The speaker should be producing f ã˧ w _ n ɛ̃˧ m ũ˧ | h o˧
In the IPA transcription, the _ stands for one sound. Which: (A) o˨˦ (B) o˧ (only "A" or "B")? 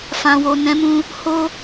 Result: B